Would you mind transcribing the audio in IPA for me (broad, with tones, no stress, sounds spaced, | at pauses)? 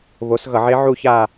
β o˨˥ s ɣ ʌ˧˩˧ ʕ e˦˥ ʕ u˥˧ ç a˥˧